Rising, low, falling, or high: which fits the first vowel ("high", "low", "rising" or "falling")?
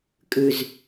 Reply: low